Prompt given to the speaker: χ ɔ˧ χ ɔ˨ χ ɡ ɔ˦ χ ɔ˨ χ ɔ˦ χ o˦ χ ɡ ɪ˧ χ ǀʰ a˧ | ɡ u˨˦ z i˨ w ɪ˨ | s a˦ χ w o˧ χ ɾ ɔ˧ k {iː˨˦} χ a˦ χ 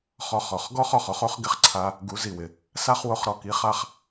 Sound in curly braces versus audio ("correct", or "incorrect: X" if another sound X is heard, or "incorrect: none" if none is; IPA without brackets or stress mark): incorrect: i˨˦